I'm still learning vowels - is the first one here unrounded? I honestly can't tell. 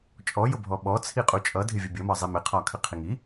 no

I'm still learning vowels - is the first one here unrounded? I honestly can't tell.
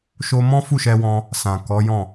no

